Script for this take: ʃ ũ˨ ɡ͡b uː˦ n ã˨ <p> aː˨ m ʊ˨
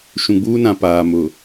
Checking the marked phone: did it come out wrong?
no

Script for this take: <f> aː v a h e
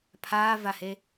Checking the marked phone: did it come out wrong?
yes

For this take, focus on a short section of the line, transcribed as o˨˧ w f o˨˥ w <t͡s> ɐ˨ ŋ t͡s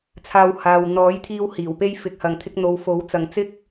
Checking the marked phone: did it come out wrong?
no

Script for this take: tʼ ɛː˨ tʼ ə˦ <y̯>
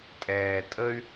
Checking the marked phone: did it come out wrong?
no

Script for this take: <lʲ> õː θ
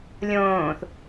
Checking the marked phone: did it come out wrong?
no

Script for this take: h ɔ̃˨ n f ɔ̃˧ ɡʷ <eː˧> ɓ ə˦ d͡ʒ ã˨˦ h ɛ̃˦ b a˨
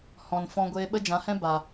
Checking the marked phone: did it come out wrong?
no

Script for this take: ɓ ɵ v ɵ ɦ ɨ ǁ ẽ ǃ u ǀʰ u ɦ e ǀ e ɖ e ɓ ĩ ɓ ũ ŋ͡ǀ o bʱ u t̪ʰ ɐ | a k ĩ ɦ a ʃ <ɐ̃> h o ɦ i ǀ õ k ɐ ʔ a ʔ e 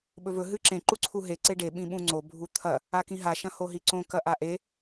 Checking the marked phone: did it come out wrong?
no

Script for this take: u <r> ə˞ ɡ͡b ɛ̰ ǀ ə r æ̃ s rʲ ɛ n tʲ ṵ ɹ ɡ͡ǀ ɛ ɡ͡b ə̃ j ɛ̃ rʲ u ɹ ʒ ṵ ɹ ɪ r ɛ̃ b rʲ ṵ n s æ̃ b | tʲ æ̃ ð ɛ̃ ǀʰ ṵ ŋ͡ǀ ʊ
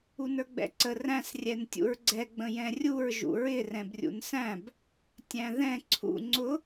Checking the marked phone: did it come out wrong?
yes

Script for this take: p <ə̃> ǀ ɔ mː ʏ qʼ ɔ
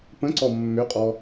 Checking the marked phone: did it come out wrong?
no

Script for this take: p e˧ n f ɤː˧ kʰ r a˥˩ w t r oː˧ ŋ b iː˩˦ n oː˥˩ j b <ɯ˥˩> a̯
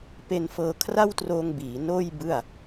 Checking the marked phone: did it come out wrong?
no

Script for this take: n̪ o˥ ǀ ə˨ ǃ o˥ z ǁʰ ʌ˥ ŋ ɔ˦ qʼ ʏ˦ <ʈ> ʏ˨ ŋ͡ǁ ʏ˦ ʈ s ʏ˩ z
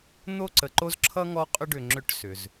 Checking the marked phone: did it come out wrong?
yes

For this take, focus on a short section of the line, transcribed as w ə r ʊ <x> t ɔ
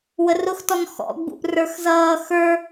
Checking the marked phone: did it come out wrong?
no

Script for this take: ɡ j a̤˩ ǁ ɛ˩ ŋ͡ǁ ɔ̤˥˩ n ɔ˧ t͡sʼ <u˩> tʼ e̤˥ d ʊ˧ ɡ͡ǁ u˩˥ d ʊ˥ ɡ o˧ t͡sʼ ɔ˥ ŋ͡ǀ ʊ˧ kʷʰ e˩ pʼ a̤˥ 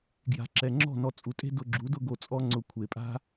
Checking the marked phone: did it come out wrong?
no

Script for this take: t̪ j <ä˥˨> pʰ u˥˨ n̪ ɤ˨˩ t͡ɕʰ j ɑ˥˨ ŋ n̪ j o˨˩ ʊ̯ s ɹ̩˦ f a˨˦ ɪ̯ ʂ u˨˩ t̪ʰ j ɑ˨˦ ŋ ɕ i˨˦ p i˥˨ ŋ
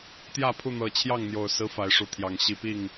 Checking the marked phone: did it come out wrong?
no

